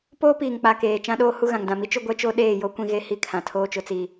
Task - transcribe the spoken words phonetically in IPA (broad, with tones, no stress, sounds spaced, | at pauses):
p oː˦ p iː˨ ŋ k͡p a˨ k eː˨ t͡ʃ ã˦ ɗ oː˦ h u˦ ɣ ã˨ ŋ d ã˨ m i˦ t͡ʃ ʊ˦ ɡʷ ɛ˦ t͡ʃ o˦ ɗ eː˦˨ j o˦ kʷ ĩ˦ ɣ e˦ h i˦ kʰ ã˨ tʰ oː˦ t͡ʃ ʊ˨ t͡s i˨